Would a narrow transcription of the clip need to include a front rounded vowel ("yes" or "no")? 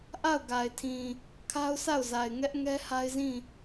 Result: no